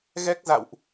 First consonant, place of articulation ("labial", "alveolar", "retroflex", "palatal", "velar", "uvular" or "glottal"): velar